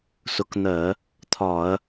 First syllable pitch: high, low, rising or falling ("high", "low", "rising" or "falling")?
rising